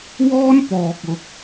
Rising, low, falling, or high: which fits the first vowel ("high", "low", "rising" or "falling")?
high